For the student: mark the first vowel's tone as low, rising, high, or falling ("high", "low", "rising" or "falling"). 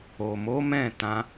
low